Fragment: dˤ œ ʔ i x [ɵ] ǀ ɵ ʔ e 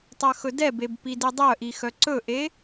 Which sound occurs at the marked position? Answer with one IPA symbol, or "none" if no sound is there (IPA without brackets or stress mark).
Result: œ